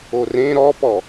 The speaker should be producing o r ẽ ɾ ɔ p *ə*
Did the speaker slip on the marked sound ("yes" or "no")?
yes